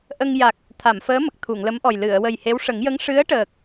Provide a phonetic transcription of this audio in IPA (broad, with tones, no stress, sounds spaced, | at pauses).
ʔ ə˧ ŋ j a˨˩ k̚ | t̪ʰ a˨˩˨ m f əː˧˥ m ə˨˩ k̚ t̪ʰ u˨˩˨ ŋ l ə˧˥ m ʔ ɔ˨˩ j l ɨ˨˩˨ ə̯ w ə˨˩ j h e˧˥ w ʂ ə˨˩˦ ŋ j ə˧˥ ŋ ʂ ɨ˧˥ ə̯ ʈ əː˨˩ k̚